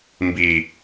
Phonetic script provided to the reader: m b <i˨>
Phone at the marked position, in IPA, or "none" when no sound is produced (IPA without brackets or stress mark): i˨